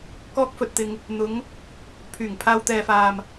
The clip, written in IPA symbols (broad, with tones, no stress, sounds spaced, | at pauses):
k ɔː˥ k̚ f ɵ˧ t̚ t̪ ɪ˧ ŋ | n̪ ʊ˨˧ ŋ | pʰ yː˨˩ ŋ pʰ aː˧ w t̪ ɛː˨ f aː˨ m